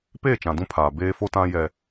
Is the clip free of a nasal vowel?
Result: no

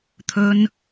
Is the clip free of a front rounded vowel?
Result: yes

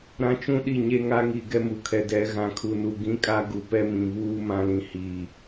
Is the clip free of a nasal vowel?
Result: no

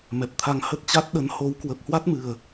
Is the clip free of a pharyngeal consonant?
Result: yes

